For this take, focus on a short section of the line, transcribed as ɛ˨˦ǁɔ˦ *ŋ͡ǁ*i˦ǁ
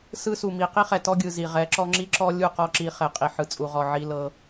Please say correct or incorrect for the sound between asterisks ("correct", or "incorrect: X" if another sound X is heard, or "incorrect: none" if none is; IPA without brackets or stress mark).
correct